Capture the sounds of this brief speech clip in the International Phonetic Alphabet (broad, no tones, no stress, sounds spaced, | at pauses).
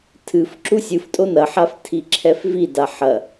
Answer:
tʰ ɨ f ǁ u sʲ ɨ f tʼ o n ɐ ħ a f tʰ i ǁʰ ɛ f v i d a ħ ɐ